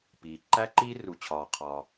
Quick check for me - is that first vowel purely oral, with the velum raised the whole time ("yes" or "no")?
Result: yes